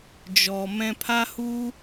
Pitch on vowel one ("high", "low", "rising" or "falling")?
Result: low